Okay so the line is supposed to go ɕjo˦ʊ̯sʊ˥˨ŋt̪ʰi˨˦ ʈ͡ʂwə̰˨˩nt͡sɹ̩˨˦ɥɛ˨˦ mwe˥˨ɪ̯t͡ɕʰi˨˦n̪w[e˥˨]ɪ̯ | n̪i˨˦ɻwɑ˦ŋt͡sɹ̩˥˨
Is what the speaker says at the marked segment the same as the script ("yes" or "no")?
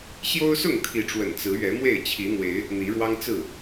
no